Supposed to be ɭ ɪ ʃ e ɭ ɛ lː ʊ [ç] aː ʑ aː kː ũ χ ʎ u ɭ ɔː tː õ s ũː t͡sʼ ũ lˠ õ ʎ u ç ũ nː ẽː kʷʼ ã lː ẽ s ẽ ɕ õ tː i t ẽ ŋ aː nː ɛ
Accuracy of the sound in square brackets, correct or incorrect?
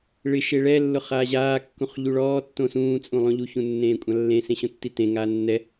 incorrect